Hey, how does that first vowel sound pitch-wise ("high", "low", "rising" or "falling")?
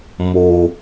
low